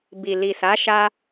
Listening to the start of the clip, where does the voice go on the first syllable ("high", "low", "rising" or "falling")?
low